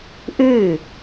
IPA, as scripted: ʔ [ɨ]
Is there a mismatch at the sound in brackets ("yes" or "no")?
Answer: no